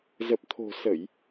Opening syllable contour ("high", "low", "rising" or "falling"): low